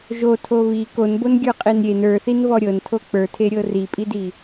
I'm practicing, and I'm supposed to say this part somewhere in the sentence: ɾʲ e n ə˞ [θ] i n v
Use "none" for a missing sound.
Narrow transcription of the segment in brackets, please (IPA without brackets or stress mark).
θ